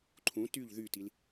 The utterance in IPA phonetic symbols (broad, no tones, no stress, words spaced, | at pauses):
ǃʰũ tyʎ ðytil